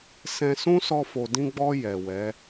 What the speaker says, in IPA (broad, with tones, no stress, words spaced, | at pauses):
sɛ̃˧sũ˦ sɔ˧fo˨dĩ˧ɡ͡bɔ˧ jɛ˨wɛ˨˦